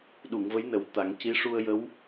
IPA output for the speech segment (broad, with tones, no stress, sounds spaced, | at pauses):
ɗ u˨˩˨ ŋ v ə˧˥ j n ə˨˩˦ w t̪ a˨˩˦ ŋ c i˧˥ ʂ u˧ ə̯ j ə˧˥ w